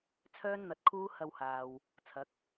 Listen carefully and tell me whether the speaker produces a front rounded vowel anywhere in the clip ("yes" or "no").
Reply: yes